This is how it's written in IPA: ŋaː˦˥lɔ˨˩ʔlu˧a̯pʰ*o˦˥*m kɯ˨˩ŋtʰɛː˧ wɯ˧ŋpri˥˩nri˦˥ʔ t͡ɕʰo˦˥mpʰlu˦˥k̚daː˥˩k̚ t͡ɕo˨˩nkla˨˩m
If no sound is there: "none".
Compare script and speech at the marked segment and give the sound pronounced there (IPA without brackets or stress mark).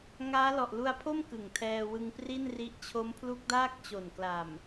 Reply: o˥˩